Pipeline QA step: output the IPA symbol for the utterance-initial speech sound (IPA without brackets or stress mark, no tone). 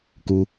k